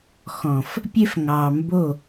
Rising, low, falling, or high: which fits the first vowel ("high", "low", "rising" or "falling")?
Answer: low